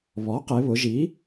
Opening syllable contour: rising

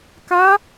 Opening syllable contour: high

